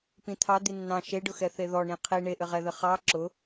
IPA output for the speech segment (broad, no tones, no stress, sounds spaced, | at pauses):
p ĩ t̪ʰ ɑ d̪ i nː ɑ̃ ʃ e ɖ ʊ x ɛ θ e ð ɔ ɳ ĩ qʰ i ɳ e ʔ ɘ ʁ ɛ ð ɘ χ ɑ ǁ ʊ